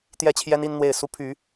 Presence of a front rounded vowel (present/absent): present